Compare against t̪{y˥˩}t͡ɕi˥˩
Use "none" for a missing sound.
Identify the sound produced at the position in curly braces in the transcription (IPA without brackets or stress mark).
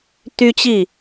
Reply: y˥